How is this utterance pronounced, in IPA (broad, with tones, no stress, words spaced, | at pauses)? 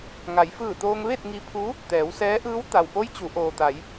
ŋa˩˧jfɯː˧˩t̪oː˧ŋ ʋe˥˨t̚ŋi˧pʰu˧˥ | t̪ɛː˩˧wsɛː˧˥ʔɯː˧˥w t̪a˩wpo˧˥j t͡ɕu˩˧ ʔoː˩t̪a˩˧j